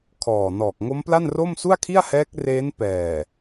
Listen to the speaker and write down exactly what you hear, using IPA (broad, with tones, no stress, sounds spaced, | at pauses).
kʰ ɔː˨˩ n ɔː˨˩ k̚ ŋ o˦˥ m p l a˥˩ n r o˥˩ m s u˥˩ a̯ kʰ i˥˩ a̯ h ɛː˦˥ k̚ r eː˦˥ n p ɛː˨˩